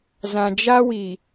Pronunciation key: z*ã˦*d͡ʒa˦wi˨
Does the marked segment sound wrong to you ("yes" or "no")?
yes